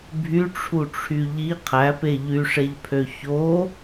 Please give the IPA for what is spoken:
bʱyʈ͡ʂʰuʈ͡ʂʰy ʎi qʰæpe ʎyʂeʎpʰø ço

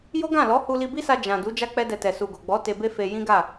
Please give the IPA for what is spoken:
jo˦ɡã˦˨lɔ˨˦ hu˧li˧bi˦sa˧ d͡ʒã˨ du˨˦ d͡ʒa˦ k͡pɛ˦dɛ˧tɛ˨ su˨ɡo˨ɡ͡bɔ˨˦ te˧be˦ fe˧ jĩ˦ɡa˦˨

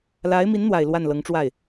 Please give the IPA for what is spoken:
la˧˥ɪ̯mi˧˥nn̪wa˨˩ɪ̯ lwa˥˩nlɤ˧˥ŋʈ͡ʂwa˥˩ɪ̯

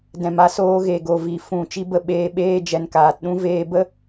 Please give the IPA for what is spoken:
dɛ̃˨ma˧ soː˧ɣe˨ɡo˨vi˨ fũ˨ t͡ʃi˧bə˧ ɓeː˧ɓeː˦ d͡ʒɛ˨nkaː˨tɗũ˦ veː˧bə˦

